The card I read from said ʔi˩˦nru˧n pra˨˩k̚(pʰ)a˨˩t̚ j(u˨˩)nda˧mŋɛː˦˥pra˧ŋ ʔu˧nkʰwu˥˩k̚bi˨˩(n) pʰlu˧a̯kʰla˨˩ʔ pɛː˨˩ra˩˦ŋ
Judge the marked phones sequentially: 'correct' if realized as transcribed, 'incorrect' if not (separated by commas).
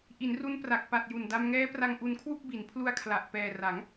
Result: incorrect, correct, correct